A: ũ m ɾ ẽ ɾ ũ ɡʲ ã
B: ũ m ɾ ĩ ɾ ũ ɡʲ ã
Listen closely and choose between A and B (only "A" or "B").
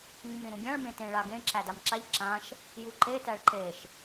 B